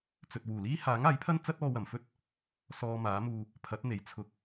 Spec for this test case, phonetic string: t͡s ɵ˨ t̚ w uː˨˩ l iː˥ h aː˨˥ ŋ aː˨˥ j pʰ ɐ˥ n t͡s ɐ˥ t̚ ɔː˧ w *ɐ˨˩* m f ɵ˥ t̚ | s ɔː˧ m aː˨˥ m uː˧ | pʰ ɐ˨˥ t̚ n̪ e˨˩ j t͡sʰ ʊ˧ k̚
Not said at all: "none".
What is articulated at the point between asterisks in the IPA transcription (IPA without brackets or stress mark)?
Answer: ɐ˨˩